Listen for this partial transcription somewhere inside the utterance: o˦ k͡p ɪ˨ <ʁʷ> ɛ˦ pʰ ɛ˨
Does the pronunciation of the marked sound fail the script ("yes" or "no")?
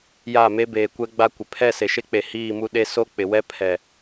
yes